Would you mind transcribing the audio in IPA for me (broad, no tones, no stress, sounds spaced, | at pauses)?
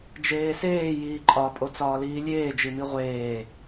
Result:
d͡ʒ eː s eː j iː ǃʼ ɒ pʼ o t͡s ɒː l iː lʲ eː d͡ʒ i m i ʁʷ eː